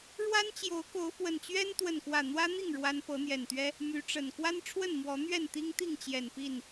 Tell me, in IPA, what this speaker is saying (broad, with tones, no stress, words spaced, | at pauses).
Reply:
ɻwa˦nt͡ɕjo˨˦ʊ̯ko˨˦ʊ̯ fwə˨˩nt͡ɕɥɛ˦n t̪wə˥˨nkwä˥˨ n̪wä˦n̪i˥˨ŋ ɻwa˦n pɤ˨˦n̪jɛ˨˩nt̪ɥɛ˦ | my˨˦ʈ͡ʂə˨˩n kwa˦nʈ͡ʂʰwə˥˨nmwɔ˨˦n̪ɥɛ˥˨n t̪i˦ŋt̪i˥˨ŋt͡ɕjɛ˨˩n pi˥˨n